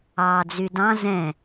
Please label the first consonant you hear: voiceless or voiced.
voiced